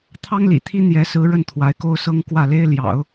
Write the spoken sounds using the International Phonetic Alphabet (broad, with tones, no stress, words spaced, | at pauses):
t̪ʰɑ˥ŋlḭ˨˩t̪ʰi˥ n̪jɛ˧˥sɹ̩˧˥ ɻə˥˩nt̪ʰwa˧˥ɪ̯ko˥ʊ̯sɤ˥ŋ kwä˥˩le˥ɪ̯ ljɑ̰˨˩˦ʊ̯